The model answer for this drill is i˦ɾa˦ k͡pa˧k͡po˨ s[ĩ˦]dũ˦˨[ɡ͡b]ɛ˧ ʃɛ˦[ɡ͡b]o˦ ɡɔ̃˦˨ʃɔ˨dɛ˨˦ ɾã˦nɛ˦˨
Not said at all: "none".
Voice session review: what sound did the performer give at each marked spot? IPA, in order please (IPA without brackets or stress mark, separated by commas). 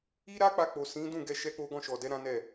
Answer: ĩ˨˦, ɡ, k͡p